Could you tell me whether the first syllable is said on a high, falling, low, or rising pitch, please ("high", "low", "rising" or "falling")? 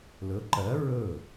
rising